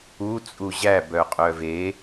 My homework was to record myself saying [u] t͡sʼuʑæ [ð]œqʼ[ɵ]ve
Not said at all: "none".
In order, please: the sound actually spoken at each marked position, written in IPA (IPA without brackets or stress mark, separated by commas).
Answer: u, b, œ